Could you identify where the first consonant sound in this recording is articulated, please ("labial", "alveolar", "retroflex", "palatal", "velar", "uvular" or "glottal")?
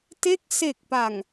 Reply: alveolar